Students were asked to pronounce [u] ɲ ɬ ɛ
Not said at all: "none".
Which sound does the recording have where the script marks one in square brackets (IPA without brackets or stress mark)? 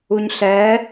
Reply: u